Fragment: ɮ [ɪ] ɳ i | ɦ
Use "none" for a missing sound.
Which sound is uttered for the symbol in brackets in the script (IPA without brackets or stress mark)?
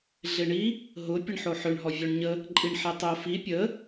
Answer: ɪ